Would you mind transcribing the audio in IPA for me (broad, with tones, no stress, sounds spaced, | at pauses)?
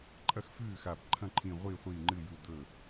ǃʼ ɐ˥˩ x f ʉː˥˩ x a˧˩ b ǃʰ ɐ̃˥˩ ǃʰ ĩ˧˩ ʁʷ iː˥˩ χʷ iː˧˩ ŋ͡ǃ ɨ˧˩ j u˧˩ d̪ ɵ˧˩